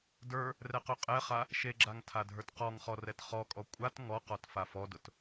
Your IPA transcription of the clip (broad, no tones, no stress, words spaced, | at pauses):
də˞ | rɛqøqʼɛχa | ʃeɡ͡ǁaŋ tʰadʱə˞tqɔŋχɔ rɛtχɔkʼɔ kʷʼat ŋɔqɔt fafɔdʊt